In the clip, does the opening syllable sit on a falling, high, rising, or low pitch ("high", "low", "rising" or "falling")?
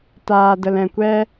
low